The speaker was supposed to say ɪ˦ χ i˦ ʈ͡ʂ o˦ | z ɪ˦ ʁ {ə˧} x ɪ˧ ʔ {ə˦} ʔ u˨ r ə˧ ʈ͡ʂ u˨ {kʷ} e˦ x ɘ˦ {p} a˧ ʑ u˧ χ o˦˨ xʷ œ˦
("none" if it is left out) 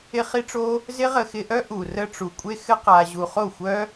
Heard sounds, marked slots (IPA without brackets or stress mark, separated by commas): ə˧, œ˦, kʷʼ, q